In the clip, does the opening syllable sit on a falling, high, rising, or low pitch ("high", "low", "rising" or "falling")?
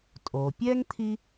low